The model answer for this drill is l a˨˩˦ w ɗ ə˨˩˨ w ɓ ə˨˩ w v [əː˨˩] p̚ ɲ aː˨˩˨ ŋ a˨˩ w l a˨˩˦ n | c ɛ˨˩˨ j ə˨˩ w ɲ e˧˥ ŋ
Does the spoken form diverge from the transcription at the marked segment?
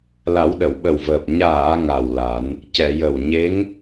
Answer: no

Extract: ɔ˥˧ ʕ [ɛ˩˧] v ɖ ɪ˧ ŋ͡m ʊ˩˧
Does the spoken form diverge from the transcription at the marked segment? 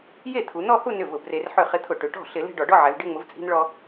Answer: no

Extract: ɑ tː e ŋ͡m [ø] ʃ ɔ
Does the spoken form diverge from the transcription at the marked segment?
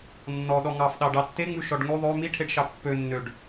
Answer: yes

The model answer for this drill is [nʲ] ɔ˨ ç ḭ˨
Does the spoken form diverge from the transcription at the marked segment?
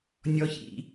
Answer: no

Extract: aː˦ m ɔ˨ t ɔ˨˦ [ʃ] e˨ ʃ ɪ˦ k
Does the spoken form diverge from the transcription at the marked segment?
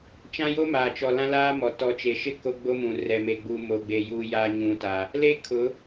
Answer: yes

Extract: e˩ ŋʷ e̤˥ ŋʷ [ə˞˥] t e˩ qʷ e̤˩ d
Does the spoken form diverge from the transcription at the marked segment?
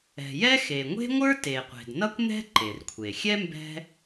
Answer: no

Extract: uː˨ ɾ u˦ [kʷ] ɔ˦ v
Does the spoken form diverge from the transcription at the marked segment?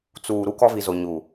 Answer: yes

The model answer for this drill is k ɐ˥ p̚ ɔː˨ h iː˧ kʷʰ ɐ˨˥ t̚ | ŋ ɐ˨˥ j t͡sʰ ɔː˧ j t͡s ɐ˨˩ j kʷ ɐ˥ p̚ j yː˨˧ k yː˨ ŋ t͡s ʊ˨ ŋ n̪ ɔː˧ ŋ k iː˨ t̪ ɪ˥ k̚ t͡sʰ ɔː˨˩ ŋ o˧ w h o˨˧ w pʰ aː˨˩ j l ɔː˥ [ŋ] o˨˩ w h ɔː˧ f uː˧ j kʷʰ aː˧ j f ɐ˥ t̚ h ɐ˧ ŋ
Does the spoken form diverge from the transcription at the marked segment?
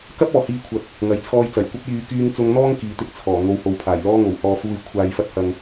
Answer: no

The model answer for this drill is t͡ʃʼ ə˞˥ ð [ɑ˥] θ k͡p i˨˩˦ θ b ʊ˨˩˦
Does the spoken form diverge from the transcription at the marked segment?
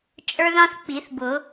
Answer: yes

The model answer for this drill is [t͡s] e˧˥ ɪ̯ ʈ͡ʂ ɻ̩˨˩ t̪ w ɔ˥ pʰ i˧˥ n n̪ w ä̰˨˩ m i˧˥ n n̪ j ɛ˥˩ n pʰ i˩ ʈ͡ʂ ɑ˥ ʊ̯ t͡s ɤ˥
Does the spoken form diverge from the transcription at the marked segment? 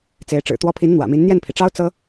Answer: no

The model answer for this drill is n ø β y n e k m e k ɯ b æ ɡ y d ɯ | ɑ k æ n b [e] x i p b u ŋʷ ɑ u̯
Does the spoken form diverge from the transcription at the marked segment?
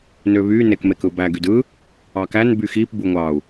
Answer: yes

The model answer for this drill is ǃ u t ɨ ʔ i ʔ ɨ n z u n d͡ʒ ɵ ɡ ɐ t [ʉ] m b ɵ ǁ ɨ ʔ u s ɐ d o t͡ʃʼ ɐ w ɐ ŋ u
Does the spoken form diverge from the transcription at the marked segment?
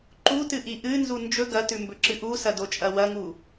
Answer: no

